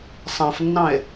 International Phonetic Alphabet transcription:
sˤãfnːɑ̃e̯

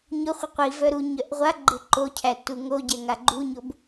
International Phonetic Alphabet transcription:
ɲʊχʷɪ qʷivœ ɾu ɲœʔʁʷaɡ͡ǃɪ ǃocʰæ tuŋoɟɛ ŋaɡ͡ǃuɲob

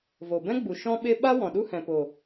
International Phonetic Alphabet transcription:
vo˨bɛ̃˦ɡ͡bu˨ ʃɔ̃˦ɓe˦ ɓa˦ wɔ̃˨ɗu˦ hɛ̃˨po˨

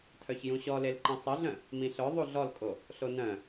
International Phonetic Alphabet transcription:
tʰœçjũɕɔlel ǃĩsˤəɮœ̃ | mĩɬœ ðˤuɮɔlkʼo | ɬonœ̃

